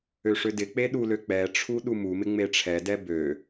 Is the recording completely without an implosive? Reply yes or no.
no